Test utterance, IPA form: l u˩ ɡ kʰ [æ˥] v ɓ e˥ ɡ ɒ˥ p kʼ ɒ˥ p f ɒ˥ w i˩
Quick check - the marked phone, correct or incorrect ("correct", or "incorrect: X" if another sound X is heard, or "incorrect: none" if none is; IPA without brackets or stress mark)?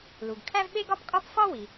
correct